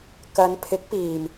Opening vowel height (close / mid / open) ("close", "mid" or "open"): open